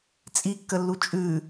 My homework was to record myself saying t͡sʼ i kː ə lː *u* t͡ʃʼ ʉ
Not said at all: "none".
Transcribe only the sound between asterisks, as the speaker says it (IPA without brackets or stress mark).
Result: u